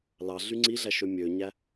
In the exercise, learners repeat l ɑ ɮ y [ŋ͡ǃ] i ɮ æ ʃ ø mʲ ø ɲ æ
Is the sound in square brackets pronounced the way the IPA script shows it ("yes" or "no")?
no